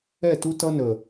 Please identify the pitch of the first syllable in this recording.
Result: falling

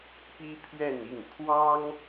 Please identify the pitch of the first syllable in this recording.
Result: high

